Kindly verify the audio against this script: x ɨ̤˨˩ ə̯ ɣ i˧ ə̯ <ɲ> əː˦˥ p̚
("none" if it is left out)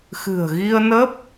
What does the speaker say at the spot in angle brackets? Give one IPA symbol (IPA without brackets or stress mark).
n